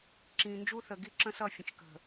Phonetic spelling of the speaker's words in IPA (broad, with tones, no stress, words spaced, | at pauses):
ǁĩ˨nd͡ʒu˦θə˨ ɡi˦ǁə̃˦sʌ˦˨fʲə̃˨t͡ʃ kə̤˨